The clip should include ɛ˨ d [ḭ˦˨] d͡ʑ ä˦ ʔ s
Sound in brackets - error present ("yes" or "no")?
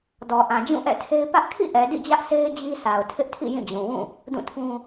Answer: no